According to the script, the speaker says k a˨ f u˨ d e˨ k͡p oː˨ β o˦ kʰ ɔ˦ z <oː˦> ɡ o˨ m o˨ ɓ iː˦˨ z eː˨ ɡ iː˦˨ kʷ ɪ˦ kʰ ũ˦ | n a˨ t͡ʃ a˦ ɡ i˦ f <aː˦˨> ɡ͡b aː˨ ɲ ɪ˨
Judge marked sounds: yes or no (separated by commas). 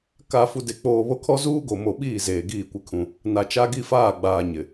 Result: no, yes